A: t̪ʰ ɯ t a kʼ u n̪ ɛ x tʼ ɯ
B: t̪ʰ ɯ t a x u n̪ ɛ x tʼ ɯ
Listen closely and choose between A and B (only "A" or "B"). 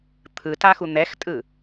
B